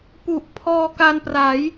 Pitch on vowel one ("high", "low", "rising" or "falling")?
low